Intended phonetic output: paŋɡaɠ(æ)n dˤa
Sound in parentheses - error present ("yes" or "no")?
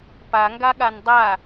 yes